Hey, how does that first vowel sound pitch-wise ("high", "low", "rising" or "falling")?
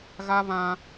high